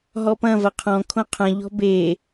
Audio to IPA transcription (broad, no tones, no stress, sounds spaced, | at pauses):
ɦ ɔ p ɐ̃ v ɐ qʰ ɔ̃ kʰ õ qʰ ɐ̃ ʎ ɔ̤ b e